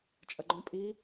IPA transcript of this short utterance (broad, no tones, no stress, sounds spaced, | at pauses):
t͡ʃʼ ɜ ɡ͡ǃ õ pʼ i